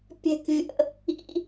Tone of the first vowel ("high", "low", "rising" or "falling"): high